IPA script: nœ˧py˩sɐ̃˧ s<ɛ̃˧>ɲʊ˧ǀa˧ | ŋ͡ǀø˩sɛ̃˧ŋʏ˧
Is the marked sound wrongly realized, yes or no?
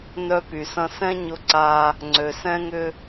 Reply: yes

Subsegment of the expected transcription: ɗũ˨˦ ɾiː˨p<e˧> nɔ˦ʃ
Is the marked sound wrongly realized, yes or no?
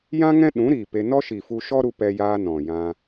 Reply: no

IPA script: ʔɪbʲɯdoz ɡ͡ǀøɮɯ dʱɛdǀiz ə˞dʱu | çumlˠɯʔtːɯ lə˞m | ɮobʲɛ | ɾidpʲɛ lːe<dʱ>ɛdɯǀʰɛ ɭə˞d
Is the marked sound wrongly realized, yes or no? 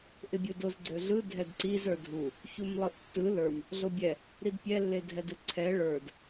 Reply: no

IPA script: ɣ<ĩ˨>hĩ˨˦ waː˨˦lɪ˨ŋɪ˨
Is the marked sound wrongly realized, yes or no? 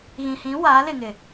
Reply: no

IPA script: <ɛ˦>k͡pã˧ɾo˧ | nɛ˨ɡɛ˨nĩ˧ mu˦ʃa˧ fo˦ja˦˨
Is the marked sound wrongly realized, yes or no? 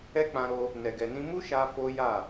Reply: no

